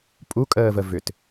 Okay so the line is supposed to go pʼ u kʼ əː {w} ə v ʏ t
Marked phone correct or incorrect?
incorrect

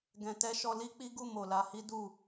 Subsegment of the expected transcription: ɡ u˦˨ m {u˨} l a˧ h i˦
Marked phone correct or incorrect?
incorrect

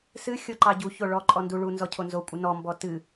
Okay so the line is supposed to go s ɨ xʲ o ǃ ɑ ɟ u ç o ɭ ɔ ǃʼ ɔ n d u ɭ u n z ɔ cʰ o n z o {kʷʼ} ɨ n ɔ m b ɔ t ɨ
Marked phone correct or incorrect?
correct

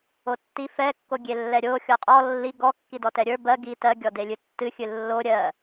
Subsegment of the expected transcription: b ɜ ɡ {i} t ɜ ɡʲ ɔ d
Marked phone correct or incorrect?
correct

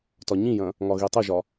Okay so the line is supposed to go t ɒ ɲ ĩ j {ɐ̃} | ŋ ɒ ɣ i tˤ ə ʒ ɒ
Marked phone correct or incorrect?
correct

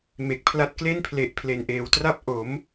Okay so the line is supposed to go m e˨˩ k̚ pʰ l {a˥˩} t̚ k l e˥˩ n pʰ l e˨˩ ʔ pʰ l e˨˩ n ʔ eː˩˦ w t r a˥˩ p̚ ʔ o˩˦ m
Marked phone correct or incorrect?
incorrect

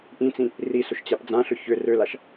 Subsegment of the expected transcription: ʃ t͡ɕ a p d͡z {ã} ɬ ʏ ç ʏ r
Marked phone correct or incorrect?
correct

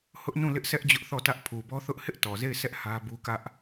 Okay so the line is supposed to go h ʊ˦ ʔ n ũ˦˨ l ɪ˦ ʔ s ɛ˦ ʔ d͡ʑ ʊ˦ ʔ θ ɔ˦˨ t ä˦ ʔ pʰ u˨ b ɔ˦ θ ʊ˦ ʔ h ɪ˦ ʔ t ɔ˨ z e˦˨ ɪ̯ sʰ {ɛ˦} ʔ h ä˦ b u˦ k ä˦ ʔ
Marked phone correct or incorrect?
correct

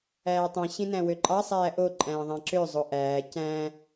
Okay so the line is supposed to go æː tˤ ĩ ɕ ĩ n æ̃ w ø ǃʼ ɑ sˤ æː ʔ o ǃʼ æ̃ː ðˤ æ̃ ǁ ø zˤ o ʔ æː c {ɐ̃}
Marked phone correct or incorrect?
incorrect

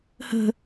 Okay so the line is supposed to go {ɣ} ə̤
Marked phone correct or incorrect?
incorrect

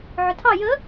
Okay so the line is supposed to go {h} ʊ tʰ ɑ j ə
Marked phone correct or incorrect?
incorrect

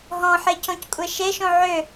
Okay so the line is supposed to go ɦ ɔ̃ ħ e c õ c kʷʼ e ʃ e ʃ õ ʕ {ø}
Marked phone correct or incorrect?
correct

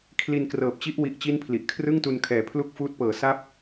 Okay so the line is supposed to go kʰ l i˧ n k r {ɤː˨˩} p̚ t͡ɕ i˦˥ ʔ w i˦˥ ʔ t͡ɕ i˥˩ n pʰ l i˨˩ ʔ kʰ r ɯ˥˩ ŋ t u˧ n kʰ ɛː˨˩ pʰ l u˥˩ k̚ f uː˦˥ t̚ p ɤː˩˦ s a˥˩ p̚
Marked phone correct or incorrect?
correct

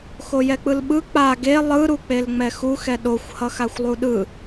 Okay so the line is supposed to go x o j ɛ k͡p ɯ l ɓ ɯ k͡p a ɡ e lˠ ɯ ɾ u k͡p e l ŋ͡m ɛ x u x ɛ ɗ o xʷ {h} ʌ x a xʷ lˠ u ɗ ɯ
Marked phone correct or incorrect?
correct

